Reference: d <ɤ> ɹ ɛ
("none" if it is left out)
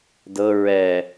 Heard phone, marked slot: ɤ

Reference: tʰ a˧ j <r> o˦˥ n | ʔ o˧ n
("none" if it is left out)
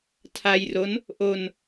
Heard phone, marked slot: r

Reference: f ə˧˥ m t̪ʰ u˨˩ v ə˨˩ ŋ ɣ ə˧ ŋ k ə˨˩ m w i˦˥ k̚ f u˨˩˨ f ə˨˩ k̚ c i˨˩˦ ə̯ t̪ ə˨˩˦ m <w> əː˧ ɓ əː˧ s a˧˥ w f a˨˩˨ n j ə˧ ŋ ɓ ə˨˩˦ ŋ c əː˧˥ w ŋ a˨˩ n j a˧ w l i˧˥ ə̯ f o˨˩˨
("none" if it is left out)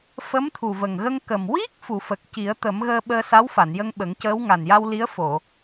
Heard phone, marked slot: ɣ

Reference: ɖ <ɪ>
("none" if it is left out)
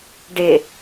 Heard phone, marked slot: ɪ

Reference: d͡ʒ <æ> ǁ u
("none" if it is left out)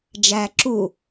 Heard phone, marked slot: æ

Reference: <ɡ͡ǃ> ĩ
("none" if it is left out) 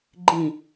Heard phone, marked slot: ɡ͡ǃ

